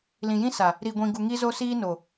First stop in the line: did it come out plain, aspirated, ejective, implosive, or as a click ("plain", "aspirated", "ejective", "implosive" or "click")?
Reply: plain